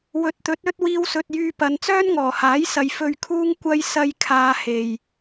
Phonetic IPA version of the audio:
wɵ˨t̚t̪ɵ˨˥t̚ɵ˥t̚ wiː˧wsɵ˨t̚jyː˧pɐ˨˧n t͡sœː˥nŋɔː˨˩haː˨˥jsɐ˨˧j fɵ˧ɥkʰuː˥ŋkʷɐ˥j sɐ˥j kʰaː˧he˨j

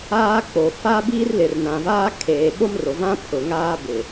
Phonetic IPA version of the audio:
aː˦ k͡po˨ fa˦ biː˦rlɪ˨rnã˨vaː˦ kʰeː˨ ɓo˦mro˨vã˦ pʰʊ˨ŋaː˦ bɪ˨

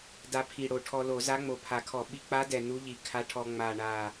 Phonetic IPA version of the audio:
da˧pʰi˨˩ɽo˨˩ ʈʰɔ˧lo˧˩˧za˧˥ ŋ͡mo˨˩pʰa˨˩kʰɔ˧˩˧ ɓi˧k͡pa˧˥dɛ˨˩ nu˧˥ʎi˨˩kʰa˧˥ʈʰɔ˧ ŋ͡ma˨˩ɳa˨˩

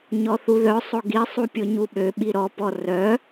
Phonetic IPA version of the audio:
ɲɔθuðœsˤo ɡisˤu pʲoɲuɓøɓi ɾɔpɔ rœ

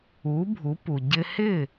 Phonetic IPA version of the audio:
u˩˥ bʱu˩˥pu˩ ɟɪ˧hɪ˥˩

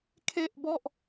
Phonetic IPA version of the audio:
kʰe˥˩ʔbɔ˥˩ʔ

